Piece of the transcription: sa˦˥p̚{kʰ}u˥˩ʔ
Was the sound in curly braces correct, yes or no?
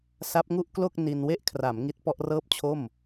no